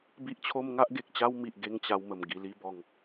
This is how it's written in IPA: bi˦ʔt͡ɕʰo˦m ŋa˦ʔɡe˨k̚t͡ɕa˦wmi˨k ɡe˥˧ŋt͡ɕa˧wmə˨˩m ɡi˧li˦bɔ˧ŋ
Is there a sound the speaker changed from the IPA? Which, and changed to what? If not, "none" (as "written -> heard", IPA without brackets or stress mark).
k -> ʔ